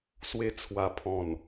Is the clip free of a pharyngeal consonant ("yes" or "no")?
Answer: yes